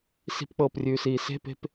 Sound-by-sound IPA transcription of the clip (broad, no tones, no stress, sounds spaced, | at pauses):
s i̤ p k͡p ɤː p rʲ ʉː s iː s e̤ p e̤ p